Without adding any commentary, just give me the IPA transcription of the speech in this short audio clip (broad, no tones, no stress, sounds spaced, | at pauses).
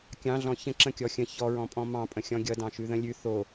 kʲ ɑ̃ ɮ ɔ̃ ç ə̃ ǁ ə̃ kʲ ɔ xʲ ə̃ ç ɔ ɹ ɔ̃ pʼ ɔ̃ m ɑ̃ pʼ ə̃ xʲ ɔ̃ ɡʲ ʌ d ɑ̃ ʃ ʉ ð ə̃ lʲ ʉ θ o